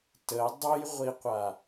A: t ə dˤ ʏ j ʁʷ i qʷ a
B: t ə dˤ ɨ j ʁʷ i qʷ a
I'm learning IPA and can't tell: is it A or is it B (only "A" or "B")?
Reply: B